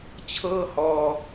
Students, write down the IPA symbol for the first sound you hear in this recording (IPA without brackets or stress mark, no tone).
t͡ɕʰ